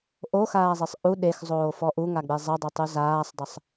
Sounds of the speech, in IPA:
ʔoxaːzˤesˤ ʔu ɗexzˤoːfɔ ʔuŋaɡ͡be zˤədˤetˤu zaːsˤdˤəsˤ

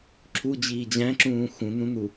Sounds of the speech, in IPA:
ǁʰud͡ʑiː d͡ʑæ̃ǁũː xũnũnu

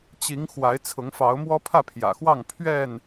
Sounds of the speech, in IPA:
t͡ɕi˨˦ŋ xwa˨˦ɪ̯t͡sʰʊ˨˦ŋfɑ˨˦ʊ̯ mwɔ˦pʰä˥˨pʰjä̰˨˩xwɑ˥˨ŋ pʰɥɛ˥˨n

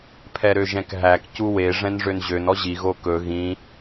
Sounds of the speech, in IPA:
pʰɛɾøʒɛ̃kɦæk cuwe ʐɛ̃nʐønʑøn ɔʑi ɣokɵ ɣĩ

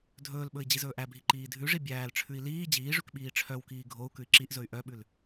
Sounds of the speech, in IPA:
dʱɵːlɓɵi̯ d͡ʑizɵːʔæbʱi ǃiːdʱʉʐi bʲæːlʈ͡ʂʰʉi̯ liː d͡ʑiːʐʉk ɓiːʈ͡ʂʰœwkiː ɡʱou̯ kʉi̯ǁiʔzɵy̯ ʔœɓʉl

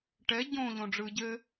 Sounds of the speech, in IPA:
ʈɛ ɟõ ʎõɖ͡ʐɯ ɟɘ

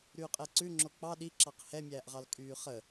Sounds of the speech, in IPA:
ɾyːqʼɛǀʉ ŋ͡ǁok͡pɑ ɗiǁɑq hɛmʲæːʔʁɑl kʼyːχə

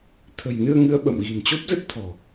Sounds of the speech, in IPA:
t̪ʰə̤˨˩jnɨ˧ə̯ŋɨ˨˦ə̯ ɓə̰˧˨m ɣi̤˨˩nt͡ɕo˦˥p̚zə˦˥t̚t̪ʰɔ̤˨˩

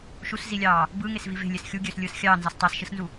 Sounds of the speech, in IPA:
ʃuszilʲɑː | bɯːŋesvi ve̤lʲes xʲuɡʲøːslʲɯːs xʲɑːnzɑs tˤɑsʃɯsnzu

